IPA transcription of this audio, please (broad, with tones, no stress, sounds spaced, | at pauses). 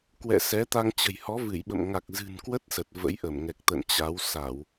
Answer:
k w ɛ̰˧˨ s ɛ˨˦ t̪ a˧ ŋ t͡ɕ ə̤˨˩ j h ɔ˨˦ v ɨ˧˩ j ɓ ə̰˧˨ m ŋ a˨˩ k̚ z ɨ̤˨˩ n k w ə˦˥ t̚ s ə˨˩ t̚ v ə̰˧˥ j ʔ ə˧˩ m ŋ ɛ˨˩ k̚ t̪ ə̰˧˨ n t͡ɕ a˨˦ w s a˧˩˨ w